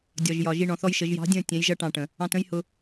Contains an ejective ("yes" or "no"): no